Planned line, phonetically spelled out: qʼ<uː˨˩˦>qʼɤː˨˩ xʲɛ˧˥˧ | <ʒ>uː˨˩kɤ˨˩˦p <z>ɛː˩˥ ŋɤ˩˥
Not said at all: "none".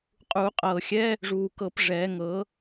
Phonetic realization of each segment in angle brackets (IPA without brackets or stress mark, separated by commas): uː˨˩˦, ʐ, ʐ